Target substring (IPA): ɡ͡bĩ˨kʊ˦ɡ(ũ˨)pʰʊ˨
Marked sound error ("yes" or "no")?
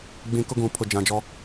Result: no